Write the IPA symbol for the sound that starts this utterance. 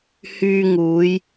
h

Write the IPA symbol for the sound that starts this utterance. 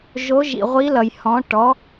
ʒ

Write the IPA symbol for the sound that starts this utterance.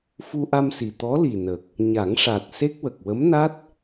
f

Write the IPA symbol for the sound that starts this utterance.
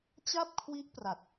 t͡ɕ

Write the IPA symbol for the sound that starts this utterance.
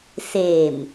s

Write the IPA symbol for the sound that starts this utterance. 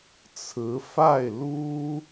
t͡sʰ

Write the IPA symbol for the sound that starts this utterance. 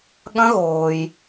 ɠ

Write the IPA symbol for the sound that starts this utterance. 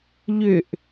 ʎ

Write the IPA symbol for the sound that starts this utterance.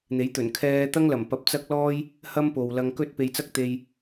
n̪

